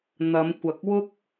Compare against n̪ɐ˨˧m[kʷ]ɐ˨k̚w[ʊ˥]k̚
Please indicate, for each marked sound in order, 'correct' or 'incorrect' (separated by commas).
correct, correct